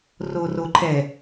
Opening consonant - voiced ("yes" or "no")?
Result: yes